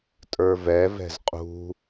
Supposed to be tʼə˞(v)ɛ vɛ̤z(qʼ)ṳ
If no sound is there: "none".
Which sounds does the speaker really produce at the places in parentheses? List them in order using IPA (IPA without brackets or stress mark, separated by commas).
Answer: v, qʼ